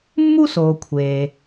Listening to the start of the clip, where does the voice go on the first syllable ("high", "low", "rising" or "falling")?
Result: high